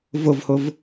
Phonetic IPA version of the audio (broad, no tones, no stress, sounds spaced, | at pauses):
v ʊ v h ʊ v